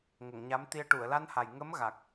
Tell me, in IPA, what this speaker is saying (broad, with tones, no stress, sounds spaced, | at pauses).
ŋ ə˨˩˨ ŋ ɲ a˧˥ m t̪ i˧ ə̯ ʈ u˨˩˨ ə̯ l a˧ n h a˨˩ j ŋ ə˧˥ m ɣ a˨˩ k̚